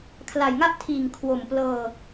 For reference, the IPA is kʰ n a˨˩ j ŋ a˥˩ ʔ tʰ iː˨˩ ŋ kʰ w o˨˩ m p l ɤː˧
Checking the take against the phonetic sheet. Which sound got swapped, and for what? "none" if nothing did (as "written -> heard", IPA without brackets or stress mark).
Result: n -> l